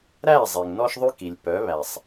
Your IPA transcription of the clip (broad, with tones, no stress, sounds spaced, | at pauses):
ɾ æ˦˨ zˤ e˨ ŋ n ɔ˦ ʃ ðˤ ʉ˦ k i˨ lʲ p œ˨˦ β æ˨ sˤ